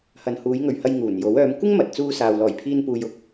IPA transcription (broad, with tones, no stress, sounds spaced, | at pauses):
h ɐ˨ n h uː˨˧ j ŋ ɵ˨ ɥ h ɐ˧ j ŋ uː˨˩ n j o˨˥ w œː˨˧ m kʷ ɪ˥ ŋ m ɐ˨ t̚ t͡s uː˧ s aː˨ w l ɔː˨˩ j pʰ iː˧ n p uː˨ j ʊ˥ k̚